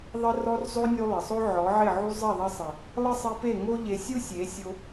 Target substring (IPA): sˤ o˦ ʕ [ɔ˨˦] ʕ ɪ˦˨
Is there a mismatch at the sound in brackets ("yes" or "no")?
no